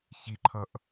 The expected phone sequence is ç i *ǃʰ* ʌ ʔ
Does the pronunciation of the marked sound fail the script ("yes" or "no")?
no